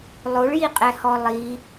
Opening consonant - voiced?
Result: yes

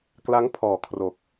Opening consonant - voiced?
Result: no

